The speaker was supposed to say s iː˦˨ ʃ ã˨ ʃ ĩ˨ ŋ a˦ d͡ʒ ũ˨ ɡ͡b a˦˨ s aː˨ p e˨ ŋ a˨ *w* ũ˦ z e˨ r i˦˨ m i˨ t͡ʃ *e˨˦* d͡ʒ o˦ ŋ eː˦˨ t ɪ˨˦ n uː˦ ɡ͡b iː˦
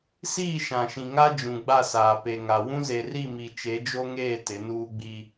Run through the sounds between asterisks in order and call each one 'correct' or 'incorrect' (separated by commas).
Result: correct, correct